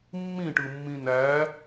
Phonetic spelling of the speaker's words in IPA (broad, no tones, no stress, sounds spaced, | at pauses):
mː ĩ ʈ ɯ mː ĩ n æ